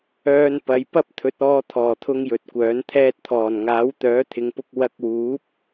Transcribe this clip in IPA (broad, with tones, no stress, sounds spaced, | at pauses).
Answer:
œː˧ n p ɐ˨˧ j p ɐ˥ p̚ t̪ʰ ɵ˨˥ t̚ ɔː˧ t̪ʰ ɔː˨˩ t̪ʰ ʊ˧ ŋ j ɵ˨˥ t̚ kʷ œː˨˥ n t̪ʰ ɛː˥ t̚ t̪ʰ ɔː˨˩ n ŋ aː˨˥ w t̪ œː˨˥ t̪ʰ ɪ˨˧ ŋ p ʊ˧ k̚ w ɐ˧ k̚ w uː˨˥ p̚